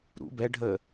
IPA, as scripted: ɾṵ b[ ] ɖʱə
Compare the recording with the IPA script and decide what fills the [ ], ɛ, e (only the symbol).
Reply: ɛ